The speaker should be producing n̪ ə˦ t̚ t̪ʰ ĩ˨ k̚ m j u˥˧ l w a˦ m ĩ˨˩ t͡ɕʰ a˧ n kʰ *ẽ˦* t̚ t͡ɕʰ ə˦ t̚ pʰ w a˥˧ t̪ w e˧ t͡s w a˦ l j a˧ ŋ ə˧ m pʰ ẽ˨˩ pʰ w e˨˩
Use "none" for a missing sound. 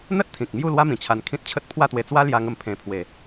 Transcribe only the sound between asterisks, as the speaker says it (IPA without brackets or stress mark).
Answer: ĩ˦